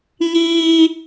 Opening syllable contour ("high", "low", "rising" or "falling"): high